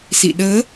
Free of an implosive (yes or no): no